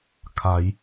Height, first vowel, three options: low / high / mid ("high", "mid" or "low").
low